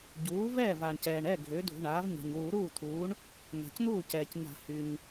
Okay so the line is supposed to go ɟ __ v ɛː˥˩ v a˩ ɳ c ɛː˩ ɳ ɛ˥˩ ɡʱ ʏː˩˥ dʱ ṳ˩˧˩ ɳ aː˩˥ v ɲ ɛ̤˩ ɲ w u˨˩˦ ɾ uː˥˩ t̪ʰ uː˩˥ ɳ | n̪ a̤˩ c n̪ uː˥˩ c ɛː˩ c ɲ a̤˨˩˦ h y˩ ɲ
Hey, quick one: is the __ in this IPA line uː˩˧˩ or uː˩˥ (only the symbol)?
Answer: uː˩˥